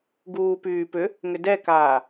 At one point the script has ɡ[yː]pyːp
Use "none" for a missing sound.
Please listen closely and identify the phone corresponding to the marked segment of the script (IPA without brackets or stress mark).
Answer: uː